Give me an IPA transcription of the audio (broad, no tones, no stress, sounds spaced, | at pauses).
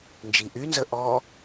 n d͡ʒ i ʔ y n z ə ʔ ɔ